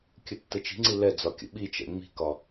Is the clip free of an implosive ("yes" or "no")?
no